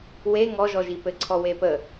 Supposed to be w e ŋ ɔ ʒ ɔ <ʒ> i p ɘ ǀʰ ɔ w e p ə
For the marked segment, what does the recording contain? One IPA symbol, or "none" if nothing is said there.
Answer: ʒ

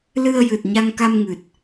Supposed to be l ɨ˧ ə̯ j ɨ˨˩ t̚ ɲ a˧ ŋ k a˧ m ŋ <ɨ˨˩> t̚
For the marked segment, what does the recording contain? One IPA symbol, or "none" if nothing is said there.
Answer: ɨ˨˩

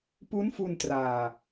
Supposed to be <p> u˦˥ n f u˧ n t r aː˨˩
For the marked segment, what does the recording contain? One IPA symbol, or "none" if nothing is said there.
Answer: p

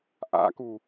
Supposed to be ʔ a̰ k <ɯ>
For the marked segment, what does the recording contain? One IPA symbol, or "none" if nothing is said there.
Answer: u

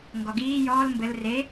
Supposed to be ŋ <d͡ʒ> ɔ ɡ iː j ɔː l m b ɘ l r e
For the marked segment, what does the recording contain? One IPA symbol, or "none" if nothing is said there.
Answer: ɡ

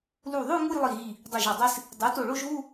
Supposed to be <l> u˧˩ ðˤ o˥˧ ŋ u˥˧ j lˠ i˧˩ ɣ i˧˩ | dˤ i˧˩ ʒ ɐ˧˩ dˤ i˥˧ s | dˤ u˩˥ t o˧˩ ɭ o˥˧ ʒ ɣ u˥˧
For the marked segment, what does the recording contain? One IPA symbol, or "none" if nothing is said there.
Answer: l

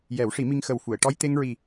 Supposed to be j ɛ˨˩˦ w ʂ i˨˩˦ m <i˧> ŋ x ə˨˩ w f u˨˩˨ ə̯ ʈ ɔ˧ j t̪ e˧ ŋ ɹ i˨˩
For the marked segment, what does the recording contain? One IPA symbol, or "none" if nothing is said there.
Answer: i˧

